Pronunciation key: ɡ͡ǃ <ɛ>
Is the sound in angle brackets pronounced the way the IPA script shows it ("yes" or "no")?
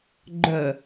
no